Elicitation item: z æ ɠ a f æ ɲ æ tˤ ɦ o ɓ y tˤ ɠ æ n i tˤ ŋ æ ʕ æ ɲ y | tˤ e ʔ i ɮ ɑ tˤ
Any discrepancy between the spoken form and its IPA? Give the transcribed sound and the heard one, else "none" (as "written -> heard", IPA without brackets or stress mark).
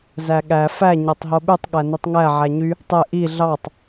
a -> æ